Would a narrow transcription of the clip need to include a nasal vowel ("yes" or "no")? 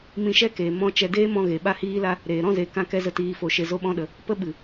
yes